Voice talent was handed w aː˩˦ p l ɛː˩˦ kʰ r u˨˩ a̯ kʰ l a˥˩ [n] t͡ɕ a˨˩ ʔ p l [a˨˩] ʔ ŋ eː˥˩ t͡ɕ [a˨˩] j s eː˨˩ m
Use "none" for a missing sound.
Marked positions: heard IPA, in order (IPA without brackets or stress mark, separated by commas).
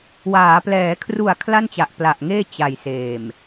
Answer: n, a˨˩, a˨˩